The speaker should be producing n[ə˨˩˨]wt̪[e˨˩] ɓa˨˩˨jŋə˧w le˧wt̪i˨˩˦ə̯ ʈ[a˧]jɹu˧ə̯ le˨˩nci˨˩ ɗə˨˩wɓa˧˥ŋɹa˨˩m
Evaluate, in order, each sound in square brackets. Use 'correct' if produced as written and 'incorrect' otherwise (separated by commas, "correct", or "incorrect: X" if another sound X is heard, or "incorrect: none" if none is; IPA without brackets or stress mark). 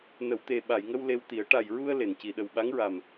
correct, correct, incorrect: a˨˩